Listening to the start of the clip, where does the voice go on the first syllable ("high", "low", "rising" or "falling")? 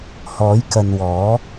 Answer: rising